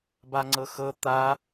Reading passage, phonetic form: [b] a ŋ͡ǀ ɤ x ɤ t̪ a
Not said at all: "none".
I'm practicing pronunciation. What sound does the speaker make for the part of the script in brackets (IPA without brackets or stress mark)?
b